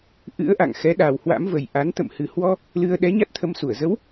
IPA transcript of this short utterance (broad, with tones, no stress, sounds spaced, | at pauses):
ʔ ɨ̰˧˥ ə̯ ʔ a̰˧˨ ŋ x ɛ˨˦ ɗ a˨˩ w h w a̰˧˥ m v ə˨˩ j ʔ a˨˦ n t̪ ə̰˧˨ m h ɨ˨˩ h w ɔ˧ | l ɨ˧ ə̯ ɗ ɛ˨˦ ɲ a˦˥ t̚ t̪ʰ ə˧ m s u˧˩ ə̯ z ə˨˦ w